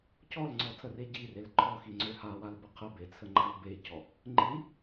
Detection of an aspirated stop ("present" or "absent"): present